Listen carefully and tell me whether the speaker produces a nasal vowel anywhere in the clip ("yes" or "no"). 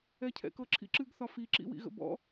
no